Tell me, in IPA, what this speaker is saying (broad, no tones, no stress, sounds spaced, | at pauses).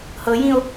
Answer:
h ɤ j ĩ o̯